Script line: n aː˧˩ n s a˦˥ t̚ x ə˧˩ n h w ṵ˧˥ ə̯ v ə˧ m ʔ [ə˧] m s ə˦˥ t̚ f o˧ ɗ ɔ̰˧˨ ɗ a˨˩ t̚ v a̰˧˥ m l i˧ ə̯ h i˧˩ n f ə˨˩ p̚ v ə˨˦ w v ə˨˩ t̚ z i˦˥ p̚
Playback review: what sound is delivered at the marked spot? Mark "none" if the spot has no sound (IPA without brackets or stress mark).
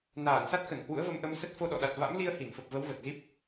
ə˧